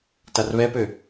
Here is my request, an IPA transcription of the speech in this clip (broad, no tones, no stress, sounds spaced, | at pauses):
t a r β ɛ p ø